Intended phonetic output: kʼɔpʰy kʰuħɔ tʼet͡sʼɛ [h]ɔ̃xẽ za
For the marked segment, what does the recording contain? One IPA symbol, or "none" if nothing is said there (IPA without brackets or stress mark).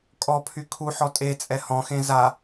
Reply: h